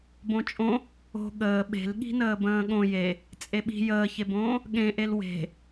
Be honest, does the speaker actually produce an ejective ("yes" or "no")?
yes